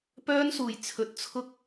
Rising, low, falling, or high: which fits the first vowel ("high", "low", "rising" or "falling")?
high